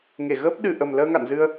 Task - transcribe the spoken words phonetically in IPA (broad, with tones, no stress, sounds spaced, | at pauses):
ŋ e˧˩ ɣ əː˦˥ p̚ ɗ ɨ˨˩ ʔ ə˨˩ m l əː˧ ŋ a̰˧˨ n z ɨ˧ ə̯